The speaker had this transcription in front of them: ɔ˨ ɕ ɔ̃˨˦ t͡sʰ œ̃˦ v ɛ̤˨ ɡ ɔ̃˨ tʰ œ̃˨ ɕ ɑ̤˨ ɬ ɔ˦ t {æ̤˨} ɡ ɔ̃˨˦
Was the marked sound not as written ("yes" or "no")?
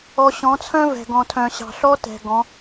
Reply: yes